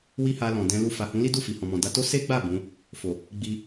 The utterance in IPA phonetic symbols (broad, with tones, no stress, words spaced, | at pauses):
wi˦ha˧lɔ̃˨ dɛ̃˧lu˧ fa˨hũ˨˦li˦du˦˨ fi˨hɔ̃˨mɔ̃˨ da˧to˦ se˦ɡ͡ba˦˨ bũ˨˦ | fo˨ | ɡ͡bi˧